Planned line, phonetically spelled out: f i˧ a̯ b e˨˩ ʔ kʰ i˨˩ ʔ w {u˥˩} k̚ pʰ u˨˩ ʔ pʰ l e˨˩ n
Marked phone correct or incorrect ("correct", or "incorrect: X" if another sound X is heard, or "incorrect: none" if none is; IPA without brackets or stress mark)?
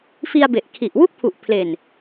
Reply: correct